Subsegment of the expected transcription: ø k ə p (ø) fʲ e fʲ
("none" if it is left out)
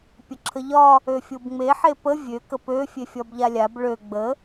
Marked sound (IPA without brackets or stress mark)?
ø